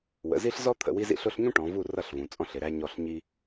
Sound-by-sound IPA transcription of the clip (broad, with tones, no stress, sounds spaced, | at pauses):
w ə̰˩˧ z i˥ ɬ z ɔ˥ t̪ʰ ə̰˦˨ w i˥ z ḭ˥ ɬ ʊ˥ ɬ ɲ ũ˥ ʈ ɔ̃˩˧ v u˦˨ r ʌ˦˨ ɬ v ũ˩˧ t͡sʼ ɔ̃˥ ɬ ɪ˩˧ ɾ æ˥ ɲ ɔ˦˨ ɬ ɲ i˥